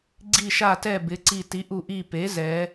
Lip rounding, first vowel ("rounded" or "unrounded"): unrounded